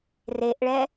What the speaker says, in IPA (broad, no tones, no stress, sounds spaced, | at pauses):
r e ʔ ɭ ɛ